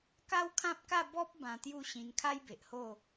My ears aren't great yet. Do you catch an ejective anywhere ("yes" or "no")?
no